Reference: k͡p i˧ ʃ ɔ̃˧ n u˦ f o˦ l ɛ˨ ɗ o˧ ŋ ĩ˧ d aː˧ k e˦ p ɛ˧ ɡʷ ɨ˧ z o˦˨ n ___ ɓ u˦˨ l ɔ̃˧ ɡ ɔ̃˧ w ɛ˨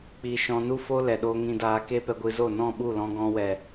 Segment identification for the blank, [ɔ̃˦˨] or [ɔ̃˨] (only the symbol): ɔ̃˦˨